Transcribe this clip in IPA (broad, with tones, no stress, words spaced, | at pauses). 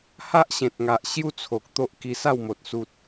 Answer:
ha˦ʔɕẽ˨t̚ŋa˨ʔ ɕju˥˧t͡sʰo˨k̚ t̪o˦ʔki˧sa˥˧wmo˨t̚ su˨t̚